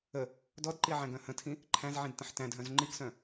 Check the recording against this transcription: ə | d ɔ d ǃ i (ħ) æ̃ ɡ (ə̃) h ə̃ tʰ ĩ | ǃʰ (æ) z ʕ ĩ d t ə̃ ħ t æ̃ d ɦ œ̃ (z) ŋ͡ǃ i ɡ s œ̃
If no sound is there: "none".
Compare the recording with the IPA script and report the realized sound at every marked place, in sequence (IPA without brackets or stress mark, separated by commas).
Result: ʕ, œ̃, æ̃, z